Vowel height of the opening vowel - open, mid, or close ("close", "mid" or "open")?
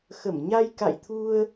mid